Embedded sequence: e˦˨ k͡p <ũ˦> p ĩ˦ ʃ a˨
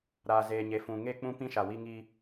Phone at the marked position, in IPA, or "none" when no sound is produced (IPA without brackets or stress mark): ũ˦